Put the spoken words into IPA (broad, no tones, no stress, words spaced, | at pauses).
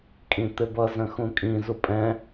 kʼĩt̪ɪbʌ zə̃xũkʼĩ zupʼɛ̃